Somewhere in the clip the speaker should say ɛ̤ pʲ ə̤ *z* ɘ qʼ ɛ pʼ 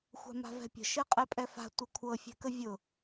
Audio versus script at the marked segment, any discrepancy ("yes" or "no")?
yes